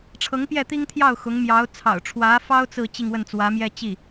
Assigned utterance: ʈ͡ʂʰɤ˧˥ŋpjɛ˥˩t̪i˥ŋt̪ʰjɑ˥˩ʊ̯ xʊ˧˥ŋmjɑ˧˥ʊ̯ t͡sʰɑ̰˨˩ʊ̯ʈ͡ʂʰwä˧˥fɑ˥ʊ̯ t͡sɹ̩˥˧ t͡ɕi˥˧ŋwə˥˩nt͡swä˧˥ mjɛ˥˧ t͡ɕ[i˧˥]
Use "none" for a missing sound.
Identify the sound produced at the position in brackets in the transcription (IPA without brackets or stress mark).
i˥˩